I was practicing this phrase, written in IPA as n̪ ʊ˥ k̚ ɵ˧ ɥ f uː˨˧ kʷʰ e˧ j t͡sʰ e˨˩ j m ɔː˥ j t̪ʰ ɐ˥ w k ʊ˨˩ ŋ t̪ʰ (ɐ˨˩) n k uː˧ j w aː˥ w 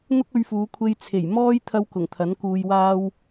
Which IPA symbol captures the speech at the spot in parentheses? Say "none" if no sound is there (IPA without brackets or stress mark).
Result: ɐ˨˥